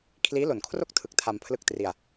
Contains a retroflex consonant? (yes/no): no